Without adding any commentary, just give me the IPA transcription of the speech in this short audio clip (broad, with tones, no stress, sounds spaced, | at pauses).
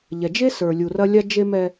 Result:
ʎ ɛ˨ d͡ʒ e˦ s ə˞˨ lʲ u˨ r ɐ˦ lʲ a˦ d͡ʒ e˦ m ɛ˦